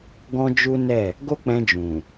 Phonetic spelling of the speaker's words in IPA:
ɡ ɔ̃˦ d͡ʒ u˦ n ɛ˦˨ | ɡ o˦ k͡p ɛ̃˧ d͡ʒ ũ˨

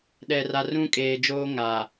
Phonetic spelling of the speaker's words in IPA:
ɗ ɛ˨ r a˨ r ũ˦ kʼ eː˨ d͡ʒ oː˦ ŋ a˨

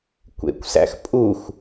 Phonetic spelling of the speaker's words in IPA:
kʷ ḛ kʷ s æ̰ x pʼ u x

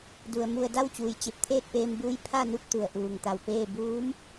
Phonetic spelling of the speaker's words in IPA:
d u˩ ə̯ m u˧˩ ə̯ d a˥˨ w t͡ɕ uː˩ j t͡ɕ e˧˩ p̚ t̪ʰ eː˥˨ t̚ p eː˧ m b uː˧˥ j pʰ a˥˨ n u˥˨ p̚ t̪ u˩ ə̯ ʔ uː˩ ŋ t̪ a˧˩ w p eː˥˨ b uː˧˥ m

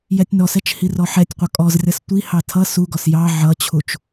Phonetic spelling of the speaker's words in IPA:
j ɛ tʲ n ɔ s ɛ t͡ʃ h i r ɔ ħ ɛ tʲ qʷ ʌ kʼ ɔ z rʲ ʌ s tʷ i h ɑ tʰ ʌ s u ɡ ɔ s j ɑ ʕ ʌ t͡ɕʰ u t͡ʃ

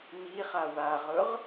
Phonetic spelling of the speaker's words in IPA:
m i χ a w a ʁ ʊ ʁ

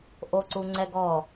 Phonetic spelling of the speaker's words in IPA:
ʔ o ǀ u ŋ͡ǀ ɛ ɡ ɔ

